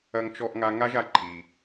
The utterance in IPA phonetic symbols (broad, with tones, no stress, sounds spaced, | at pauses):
ɐ˦ ŋ t͡ʃ ɔ˦ ʔ ŋ a˦ ŋ a˥ ʒ a˦ ǃʰ i˨